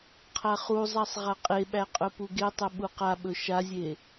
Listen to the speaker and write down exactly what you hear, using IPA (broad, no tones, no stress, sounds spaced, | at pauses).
qʰ a χ u zˤ a sˤ ʁ a qʼ e ɓ æ qʼ ɵ p u ɡ e tˤ ɵ ɓ u q a ɓ ɵ ʃ a zʲ e